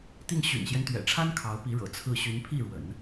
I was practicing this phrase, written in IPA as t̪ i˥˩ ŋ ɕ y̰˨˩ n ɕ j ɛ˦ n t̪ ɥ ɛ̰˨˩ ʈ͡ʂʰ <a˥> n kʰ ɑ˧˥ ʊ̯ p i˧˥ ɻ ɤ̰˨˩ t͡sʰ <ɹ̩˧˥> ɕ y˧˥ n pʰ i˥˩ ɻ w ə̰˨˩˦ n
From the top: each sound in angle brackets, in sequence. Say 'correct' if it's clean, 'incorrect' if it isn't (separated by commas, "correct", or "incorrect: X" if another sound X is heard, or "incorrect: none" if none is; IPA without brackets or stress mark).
correct, incorrect: ɹ̩˥˩